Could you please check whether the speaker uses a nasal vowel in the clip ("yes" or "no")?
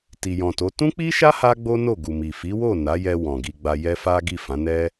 yes